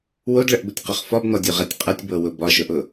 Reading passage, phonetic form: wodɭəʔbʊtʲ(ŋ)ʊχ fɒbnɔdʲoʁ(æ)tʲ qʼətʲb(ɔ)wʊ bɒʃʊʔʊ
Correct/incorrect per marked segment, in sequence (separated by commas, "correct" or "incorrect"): incorrect, correct, incorrect